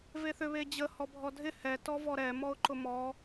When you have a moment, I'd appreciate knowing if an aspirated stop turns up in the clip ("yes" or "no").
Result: no